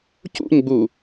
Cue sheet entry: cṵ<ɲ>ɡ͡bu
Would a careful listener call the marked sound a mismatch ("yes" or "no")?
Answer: no